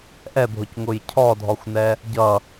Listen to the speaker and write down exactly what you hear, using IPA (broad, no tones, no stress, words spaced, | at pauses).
ʔɛbʱʊcŋʊj cʰɔdʱɔxʷnɛ | ɟʌ